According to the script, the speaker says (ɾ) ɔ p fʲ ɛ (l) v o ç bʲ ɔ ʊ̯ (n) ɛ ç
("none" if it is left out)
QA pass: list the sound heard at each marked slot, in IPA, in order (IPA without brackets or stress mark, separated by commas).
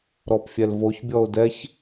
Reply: ɾ, l, d